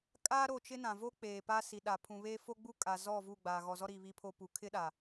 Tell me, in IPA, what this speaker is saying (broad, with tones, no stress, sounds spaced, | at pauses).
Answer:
kʼ aː˦ ɾ o˦˨ t͡ʃ ɪ˦ n ã˨ v o˦ k͡p eː˨ p a˦ s i˨ ɗ a˨ pʰ ũ˨ β eː˦ f o˦ ɡ͡b u˦ kʼ a˨ z ɔ˦˨ v u˦˨ ɡ͡b aː˨ ɣ ɔ˨ z ɔ˦ ɾ iː˨ β i˨ pʰ o˨ p u˨ kʰ ɪ˦ ɗ a˨